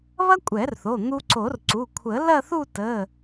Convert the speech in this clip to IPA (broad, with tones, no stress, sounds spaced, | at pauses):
β ɐ˥ kʷʼ ɛ˨˩˦ r θ o˩˧˩ n̪ u˧ ǀ o˨˩˦ r ǀ u˩˧˩ kʷʰ ə˨˩˦ l ɐ˥˧ θ u˥˧ t ə˩˧˩